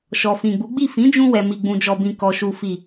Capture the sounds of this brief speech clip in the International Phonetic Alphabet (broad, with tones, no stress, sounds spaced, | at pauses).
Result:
ʃ ɔ˨ f ĩ˨ ɡ͡b u˨˦ ɡ͡b i˦˨ f ĩ˨˦ d͡ʒ ũ˧ w ɛ˨ m i˨ ɡ͡b ũ˨ d͡ʒ ɔ˨ b ĩ˨ k ɔ˨ ʃ u˨ f i˨